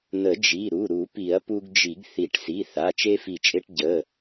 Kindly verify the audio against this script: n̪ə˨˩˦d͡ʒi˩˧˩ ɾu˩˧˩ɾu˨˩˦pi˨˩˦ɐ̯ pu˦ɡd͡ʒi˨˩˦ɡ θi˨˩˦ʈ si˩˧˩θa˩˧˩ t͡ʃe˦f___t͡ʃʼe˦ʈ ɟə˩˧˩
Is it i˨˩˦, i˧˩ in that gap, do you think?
i˧˩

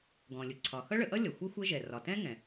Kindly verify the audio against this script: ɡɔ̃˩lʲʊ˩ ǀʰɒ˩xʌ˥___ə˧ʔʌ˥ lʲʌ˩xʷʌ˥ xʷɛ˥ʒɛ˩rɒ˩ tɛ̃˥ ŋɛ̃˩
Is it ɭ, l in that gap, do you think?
ɭ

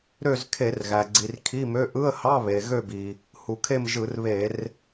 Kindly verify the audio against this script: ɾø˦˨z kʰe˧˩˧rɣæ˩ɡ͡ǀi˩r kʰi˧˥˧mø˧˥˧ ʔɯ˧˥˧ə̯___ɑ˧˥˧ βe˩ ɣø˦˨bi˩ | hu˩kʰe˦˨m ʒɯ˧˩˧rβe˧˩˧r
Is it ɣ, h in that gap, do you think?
h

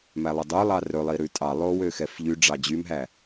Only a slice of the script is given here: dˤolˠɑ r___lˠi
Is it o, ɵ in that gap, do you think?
ɵ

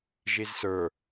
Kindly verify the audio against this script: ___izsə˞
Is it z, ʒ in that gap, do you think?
ʒ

